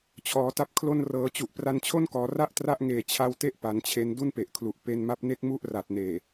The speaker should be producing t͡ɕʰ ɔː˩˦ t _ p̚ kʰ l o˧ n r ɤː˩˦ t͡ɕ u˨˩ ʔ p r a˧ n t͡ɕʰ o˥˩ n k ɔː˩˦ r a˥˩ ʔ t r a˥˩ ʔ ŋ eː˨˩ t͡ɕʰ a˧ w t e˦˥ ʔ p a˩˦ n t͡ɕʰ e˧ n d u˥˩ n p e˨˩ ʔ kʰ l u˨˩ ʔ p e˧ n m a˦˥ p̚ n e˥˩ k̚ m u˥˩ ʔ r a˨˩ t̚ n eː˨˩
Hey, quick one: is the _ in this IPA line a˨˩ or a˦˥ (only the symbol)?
a˦˥